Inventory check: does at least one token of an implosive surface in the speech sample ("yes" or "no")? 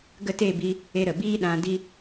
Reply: yes